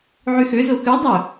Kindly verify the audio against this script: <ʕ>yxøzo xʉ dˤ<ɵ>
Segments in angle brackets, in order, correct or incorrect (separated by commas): correct, correct